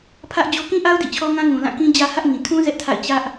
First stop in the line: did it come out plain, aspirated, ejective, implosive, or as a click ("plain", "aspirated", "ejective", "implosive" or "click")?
aspirated